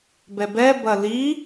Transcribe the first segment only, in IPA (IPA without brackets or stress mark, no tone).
b